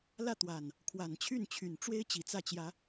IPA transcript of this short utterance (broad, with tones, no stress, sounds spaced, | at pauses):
l ä˥˨ t̪ w a˨˩ n | kʰ w a˨˩ n t͡ɕʰ y˥˨ n t͡ɕʰ y˨˩ n ʈ͡ʂ w e˦ ɪ̯ t͡ɕ i˨˦ t͡s ä˥˨ t͡ɕ j ä˨˦